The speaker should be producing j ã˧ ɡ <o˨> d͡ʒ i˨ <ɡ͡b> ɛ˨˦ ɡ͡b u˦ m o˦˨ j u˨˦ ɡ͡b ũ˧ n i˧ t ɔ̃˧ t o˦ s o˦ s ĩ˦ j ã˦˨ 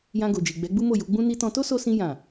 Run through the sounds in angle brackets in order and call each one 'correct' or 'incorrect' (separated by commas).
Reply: correct, correct